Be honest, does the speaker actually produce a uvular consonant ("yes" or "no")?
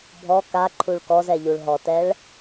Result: no